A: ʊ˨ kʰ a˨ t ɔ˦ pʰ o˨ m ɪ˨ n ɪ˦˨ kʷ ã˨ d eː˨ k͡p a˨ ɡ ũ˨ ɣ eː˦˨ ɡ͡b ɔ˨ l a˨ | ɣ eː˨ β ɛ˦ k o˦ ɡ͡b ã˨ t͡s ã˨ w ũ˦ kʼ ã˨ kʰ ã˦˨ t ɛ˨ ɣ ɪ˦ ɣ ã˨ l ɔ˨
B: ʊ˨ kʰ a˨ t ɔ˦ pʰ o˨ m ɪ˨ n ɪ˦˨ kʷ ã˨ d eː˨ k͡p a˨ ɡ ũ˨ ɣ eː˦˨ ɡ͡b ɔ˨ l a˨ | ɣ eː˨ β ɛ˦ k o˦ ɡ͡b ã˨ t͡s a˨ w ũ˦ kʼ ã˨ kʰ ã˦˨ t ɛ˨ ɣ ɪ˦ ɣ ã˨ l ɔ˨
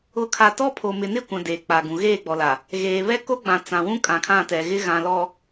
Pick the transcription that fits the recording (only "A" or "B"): A